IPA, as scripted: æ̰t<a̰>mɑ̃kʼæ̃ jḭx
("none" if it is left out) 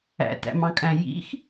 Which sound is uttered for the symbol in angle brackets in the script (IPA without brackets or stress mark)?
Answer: æ̰